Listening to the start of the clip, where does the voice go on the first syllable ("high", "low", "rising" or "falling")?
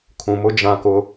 low